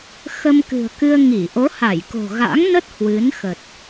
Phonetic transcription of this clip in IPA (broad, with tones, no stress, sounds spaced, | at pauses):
x ə˧ m k ɨ̤˨˩ ə̯ k ɨ˧ ə̯ ŋ i˧˩ ʔ o˨˦ h a˧˩ j k o̤˨˩ ɣ a̰˧˥ ŋ n ə˦˥ t̚ h w ɨ˨˦ n x ə˨˩ t̚